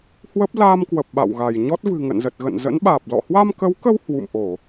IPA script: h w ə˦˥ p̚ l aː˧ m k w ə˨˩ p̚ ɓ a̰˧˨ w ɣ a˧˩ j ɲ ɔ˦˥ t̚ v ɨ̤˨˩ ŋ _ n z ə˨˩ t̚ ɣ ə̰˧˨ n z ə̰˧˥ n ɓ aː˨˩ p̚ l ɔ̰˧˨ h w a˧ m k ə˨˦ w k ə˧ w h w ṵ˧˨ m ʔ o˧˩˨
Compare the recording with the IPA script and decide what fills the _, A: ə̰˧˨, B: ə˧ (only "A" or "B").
A